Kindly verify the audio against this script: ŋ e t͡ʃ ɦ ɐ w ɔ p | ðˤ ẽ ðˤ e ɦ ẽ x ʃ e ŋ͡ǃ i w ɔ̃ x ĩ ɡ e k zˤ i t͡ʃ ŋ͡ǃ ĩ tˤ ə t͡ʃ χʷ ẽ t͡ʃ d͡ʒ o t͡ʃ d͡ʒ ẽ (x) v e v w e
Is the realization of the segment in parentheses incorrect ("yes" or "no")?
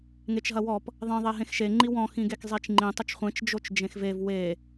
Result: no